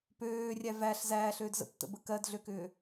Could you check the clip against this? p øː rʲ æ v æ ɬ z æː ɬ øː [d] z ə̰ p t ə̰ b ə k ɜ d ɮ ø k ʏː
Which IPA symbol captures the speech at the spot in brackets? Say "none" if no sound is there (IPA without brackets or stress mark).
d